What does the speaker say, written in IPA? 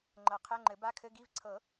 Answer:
ŋ͡ǃ ɤ˨˩˦ qʰ ɛ˧˥˧ ŋ͡ǃ ɘ˨˩˦ b a˧˥˧ kʰ ɘ˧˥˧ ɡ i˧˥˧ v ǀʰ ɤ˨˩˦

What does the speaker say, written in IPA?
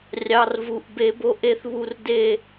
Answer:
rʲ ɑ˩˧˩ r v u˩˧˩ ʔ b e˧˩˧ b o˧ ʔ e˧ θ β u˧ r d e˥˨

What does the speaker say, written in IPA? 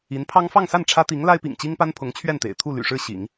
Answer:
i˧˥ n pʰ ɑ˥ ŋ f ɑ˥˧ ŋ s a˥˩ n ʈ͡ʂʰ ä˥ t̪ i˧˥ ŋ l a˥ ɪ̯ p ḭ˨˩ ŋ t͡ɕ i˥ ŋ p a˥ n pʰ ʊ˧˥ ŋ t͡ɕʰ ɥ ɛ˥˩ n t̪ ḛ˨˩ ɪ̯ t̪ʰ u˥˩ l y̰˨˩ ʂ ɻ̩˥˩ ɕ ḭ˨˩˦ ŋ

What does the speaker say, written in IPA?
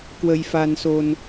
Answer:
k w ə˧ j f a˧ n s o˧ n

